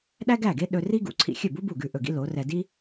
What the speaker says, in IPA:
ɗæ˥ɡæ˥˩ɡe˥ ɗɵ˧ri˥ɡṵ˩˥ ǀʰḭ˧ xʲɵ˥˩bu˥ bu˥˩ɡʉ˥˩ʔɵ˥˩ɡḭ˥ lo˩˥rɛ˧ di˥

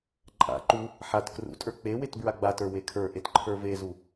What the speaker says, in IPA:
ǃʼa̰ ǃu | ħat krṵtʼə˞ k͡pewet bɹaɡ͡batə˞ wekʰə˞ʔet ǃʰə˞vezu

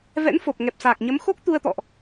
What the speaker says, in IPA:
vɛ̰˧˥nfo˨˩p̚ ŋɛ˨˩p̚saː˨˩k̚ɲə˨˦mxo˦˥k̚ t̪u˧ə̯t̪ɔ̰˧˨ʔ

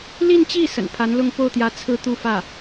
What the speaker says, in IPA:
li˥˧nt͡ɕi˥˩ sə̰˨˩npʰa˧˥nlʊ˥˧ŋ po˥˩ʊ̯t̪jä˧˥ t͡sʰɹ̩˥˧t̪u˥˧fä˥˩

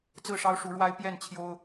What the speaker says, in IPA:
t͡sɹ̩˥˨ʂɑ˦ʊ̯ʂu˨˦ɻwa˦ɪ̯ pjɛ˥˨nt͡ɕʰjo˦ʊ̯

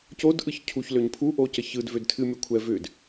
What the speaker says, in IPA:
codʔɯç cʰuçløɲ pʰuʔocə çɯdvød tʰɨmʲokʷʰɛ vʏd

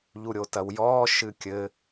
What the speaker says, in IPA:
ʎuɾʲotɐwjɔː ʃɨkʲɘ

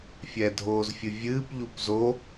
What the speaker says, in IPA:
fʲɛdʱoːzfʲɨvʲɨːp ʎupzo

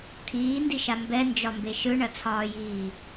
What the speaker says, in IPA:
t̪ʰiːndiʃa mbɛnd͡ʒɒmbe ʃɯɳɐt͡sʰɒːjiː

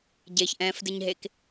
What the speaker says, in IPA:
ɟeçʔɛ̃ːfdɨɲɦek

